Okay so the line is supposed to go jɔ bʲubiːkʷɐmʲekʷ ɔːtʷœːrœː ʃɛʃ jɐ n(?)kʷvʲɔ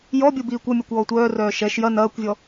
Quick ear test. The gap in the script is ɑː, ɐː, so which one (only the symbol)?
ɐː